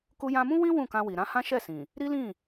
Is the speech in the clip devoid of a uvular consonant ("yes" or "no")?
yes